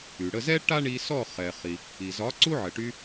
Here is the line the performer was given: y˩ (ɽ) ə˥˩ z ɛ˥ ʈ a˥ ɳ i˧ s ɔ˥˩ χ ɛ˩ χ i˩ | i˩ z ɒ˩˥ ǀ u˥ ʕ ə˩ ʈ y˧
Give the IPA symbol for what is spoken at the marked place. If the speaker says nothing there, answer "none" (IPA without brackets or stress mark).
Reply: ɽ